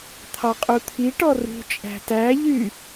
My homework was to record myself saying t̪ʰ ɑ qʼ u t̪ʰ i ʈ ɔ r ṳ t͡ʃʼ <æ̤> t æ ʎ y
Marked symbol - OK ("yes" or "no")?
yes